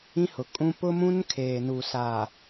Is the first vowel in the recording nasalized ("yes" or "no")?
yes